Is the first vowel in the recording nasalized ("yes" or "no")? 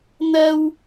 no